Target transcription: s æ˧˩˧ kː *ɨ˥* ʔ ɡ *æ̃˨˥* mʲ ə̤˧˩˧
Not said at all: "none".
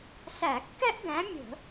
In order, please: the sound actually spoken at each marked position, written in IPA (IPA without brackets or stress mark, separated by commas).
ɛ˥, æ̃˨˥